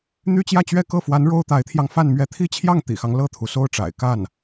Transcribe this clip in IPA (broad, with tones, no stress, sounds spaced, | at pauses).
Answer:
n̪ y˥ t͡ɕ j ä˥˧ t͡ɕ ɥ ɛ˥˧ k ɤ˥˩ f w a˧˥ n ɻ o˥ ʊ̯ t̪ a˧˥ ɪ̯ t̪ʰ j ɑ˧ ŋ f a˥˧ n m ɥ ɛ˥˩ t̪ʰ i˥ t͡ɕʰ j ɑ˥˩ ŋ t̪ ḭ˨˩ x ɑ˦ ŋ l ɤ˥˩ t̪ʰ u˩ s o˥˩ ʊ̯ ʈ͡ʂ a̰˨˩ ɪ̯ k a˥˩ n